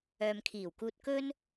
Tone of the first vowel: low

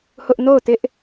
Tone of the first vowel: high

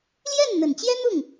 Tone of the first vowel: falling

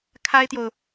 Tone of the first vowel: high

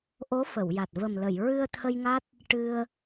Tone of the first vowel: rising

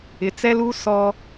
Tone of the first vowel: low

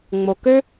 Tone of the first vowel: low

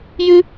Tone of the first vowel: high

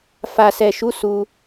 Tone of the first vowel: low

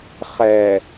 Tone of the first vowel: low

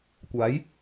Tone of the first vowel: rising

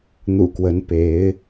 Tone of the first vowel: low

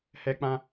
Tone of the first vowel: high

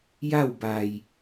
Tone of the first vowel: falling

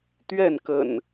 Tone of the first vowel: falling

